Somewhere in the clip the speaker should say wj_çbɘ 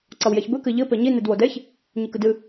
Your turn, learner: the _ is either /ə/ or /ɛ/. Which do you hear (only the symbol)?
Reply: ɛ